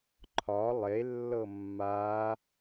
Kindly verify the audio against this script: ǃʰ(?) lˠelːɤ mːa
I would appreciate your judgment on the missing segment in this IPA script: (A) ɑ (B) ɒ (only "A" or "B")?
B